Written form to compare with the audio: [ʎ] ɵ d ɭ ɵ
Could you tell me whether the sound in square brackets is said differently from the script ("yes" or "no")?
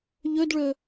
no